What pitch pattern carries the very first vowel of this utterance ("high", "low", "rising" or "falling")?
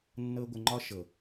high